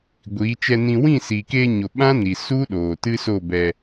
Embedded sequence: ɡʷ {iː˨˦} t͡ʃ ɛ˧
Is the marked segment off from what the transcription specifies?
no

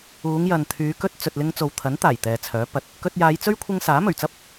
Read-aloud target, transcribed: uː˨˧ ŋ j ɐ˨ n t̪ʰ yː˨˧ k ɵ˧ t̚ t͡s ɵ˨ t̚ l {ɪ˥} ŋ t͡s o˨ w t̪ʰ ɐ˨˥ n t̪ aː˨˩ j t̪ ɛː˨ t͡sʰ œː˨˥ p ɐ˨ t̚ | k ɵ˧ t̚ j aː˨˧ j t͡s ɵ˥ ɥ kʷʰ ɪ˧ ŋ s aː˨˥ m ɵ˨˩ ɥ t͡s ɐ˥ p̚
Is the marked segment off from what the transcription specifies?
yes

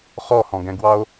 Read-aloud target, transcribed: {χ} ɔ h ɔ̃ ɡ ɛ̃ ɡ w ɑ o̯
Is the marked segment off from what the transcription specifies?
no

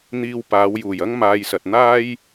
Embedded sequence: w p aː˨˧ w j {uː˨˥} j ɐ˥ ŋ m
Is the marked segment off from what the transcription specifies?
yes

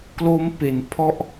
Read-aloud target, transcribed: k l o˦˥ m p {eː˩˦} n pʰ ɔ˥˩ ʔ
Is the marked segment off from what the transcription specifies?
yes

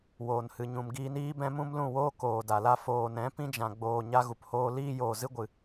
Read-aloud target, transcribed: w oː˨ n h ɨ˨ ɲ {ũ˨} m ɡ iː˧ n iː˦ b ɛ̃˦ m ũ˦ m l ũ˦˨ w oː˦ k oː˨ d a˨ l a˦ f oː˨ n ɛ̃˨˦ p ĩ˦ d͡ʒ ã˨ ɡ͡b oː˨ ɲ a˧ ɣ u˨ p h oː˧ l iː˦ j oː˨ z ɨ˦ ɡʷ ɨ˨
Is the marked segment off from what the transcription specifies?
no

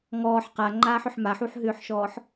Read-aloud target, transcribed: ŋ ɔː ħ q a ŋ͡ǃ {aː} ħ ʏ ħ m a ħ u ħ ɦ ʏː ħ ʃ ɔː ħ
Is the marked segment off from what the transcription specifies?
no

